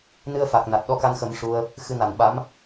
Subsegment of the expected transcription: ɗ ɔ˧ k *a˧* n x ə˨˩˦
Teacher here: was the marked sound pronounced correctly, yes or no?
yes